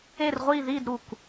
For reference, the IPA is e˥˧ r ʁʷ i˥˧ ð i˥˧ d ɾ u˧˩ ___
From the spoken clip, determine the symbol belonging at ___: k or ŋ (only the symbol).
k